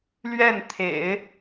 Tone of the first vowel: falling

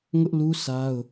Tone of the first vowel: high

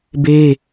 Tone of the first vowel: high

